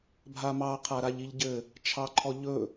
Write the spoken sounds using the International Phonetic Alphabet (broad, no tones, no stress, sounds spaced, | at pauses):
bʱ a m ɑ qʰ a ɾ a ʎ i ʎ ɟ ɘ | t͡ʃʰ ɑ ǃʰ ɔ ʎ ɵ